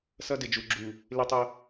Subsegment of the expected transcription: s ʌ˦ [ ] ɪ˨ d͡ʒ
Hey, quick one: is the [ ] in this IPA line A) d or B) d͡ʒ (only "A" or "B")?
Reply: A